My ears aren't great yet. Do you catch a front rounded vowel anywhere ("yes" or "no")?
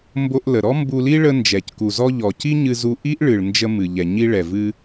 no